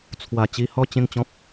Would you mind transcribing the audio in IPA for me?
t͡sʰ w a˨˩ t͡ɕ i˧ h ɔ˥˧ t͡ɕ ẽ˥˧ ŋ t͡ɕ ɔ̃˦ p̚

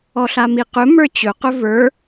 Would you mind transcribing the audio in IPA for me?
ɔ ɬ a m i q ɵ m ə˞ t͡ɕ ɵ q ɵ v ə˞

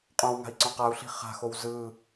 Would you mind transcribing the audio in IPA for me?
qʼ õ w ŋ a̤ i̯ ǀ õ q a u̯ ɬ i̤ χ a̤ x o w z ɯ

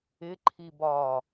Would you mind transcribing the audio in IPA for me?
ɪ ǃʰ i b ɒː

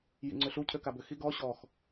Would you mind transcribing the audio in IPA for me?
j ḭ ŋ͡ǀ ʏ ɬ u cʰ ø k a b ʏ x i ɡ ɔ ɕ ɔ x

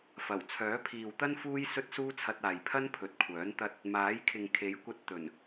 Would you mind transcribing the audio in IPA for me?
f ɐ˨˩ w t͡sʰ œː˨˥ pʰ iː˨ w t̪ ɐ˥ n f uː˥ j s ɵ˥ t̚ s uː˥ t͡sʰ ɐ˧ t̚ aː˨ j pʰ ɐ˥ n pʰ ɵ˨ t̚ kʷʰ œː˨˥ n t̪ ɐ˥ t̚ | m aː˨˥ j kʰ ɪ˨ ŋ kʰ e˨˥ j kʷ ɐ˧ t̚ t̪ ɵ˨˩ n

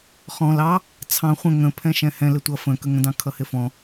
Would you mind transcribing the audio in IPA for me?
χ ɔ̃ l ɑ | t͡sʰ ɑ̃ χʷ ə̃ ŋ ə̃ pʰ ɛ̃ ʃ ɛ̃ h ɛ̃ l ɪ tʷ ʌ f ə̃ k ə ŋ ə̃ d ɑ̃ kʰ ʌ h ɪ f ɔ̃

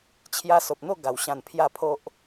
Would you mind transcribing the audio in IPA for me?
t͡ɕʰ j a˧ s o˨ p̚ n̪ o˥˧ ɡ a˨˩ w ɕ ã˧ n pʰ j a˥˧ pʰ o˦ ʔ

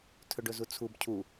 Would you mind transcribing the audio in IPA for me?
tʰ ɵ ɖ ɵ z u t͡sʰ u b cʰ u

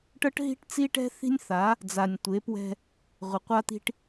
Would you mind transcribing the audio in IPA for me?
ʈ ɤ˦ ʈ ɦ i̤˦ ʈ t͡s i˦ ʈ ɛ̤˦ θ i̤˦ nʲ θ a˨˦ | d͡z a˨ nʲ tʷ e˨˦ p w ɛ̤˦ | ʁʷ e˨ qʷ a˦ t̪ i̤˦ ʈ

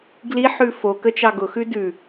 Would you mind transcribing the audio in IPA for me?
ɡ l i ħ ʉ f o k ə t͡ʃ ɑ ɡ ʊ x ʉ d ʉ

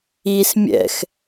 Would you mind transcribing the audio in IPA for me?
i s mʲ ɛ̰ x

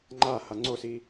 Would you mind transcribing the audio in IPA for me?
ŋ͡ǃ a h a ŋ͡ǀ o s i

